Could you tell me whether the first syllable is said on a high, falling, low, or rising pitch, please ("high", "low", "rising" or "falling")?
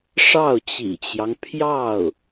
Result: falling